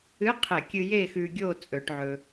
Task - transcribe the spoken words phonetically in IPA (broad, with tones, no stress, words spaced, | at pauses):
ɨ˧˥˧qʰe˧˩˧kʲɨ˧ je˥˨xʉ˧ɡʲo˥˨ t͡sʼɵ˧˩˧ʈʕɵ˧